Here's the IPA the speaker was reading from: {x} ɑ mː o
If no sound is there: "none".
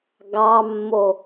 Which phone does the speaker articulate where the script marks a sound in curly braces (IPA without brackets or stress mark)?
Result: ɡ